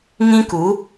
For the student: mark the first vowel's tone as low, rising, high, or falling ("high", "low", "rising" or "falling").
high